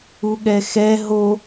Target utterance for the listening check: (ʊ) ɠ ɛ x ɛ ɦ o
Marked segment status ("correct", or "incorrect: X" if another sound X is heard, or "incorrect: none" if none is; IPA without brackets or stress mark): incorrect: u